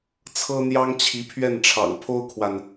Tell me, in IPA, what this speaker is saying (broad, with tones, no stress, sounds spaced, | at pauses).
t͡sʰ ɤ˥ n̪ j ɑ˥ ŋ t͡ɕʰ i˧˥ pʰ ɥ ɛ˥˩ n ʈ͡ʂʰ ɑ̰˨˩ ŋ pʰ o˥ ʊ̯ kʰ w a˨ n